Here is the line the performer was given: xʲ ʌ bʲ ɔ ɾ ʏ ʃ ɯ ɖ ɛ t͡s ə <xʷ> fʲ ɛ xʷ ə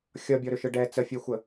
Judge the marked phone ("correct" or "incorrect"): incorrect